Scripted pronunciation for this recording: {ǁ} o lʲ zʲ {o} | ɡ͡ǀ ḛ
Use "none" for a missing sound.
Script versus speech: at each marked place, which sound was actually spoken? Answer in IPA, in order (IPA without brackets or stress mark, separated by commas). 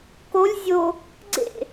k, o